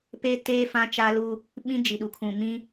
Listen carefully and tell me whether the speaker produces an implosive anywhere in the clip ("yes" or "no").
yes